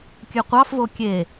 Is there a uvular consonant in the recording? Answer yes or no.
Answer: yes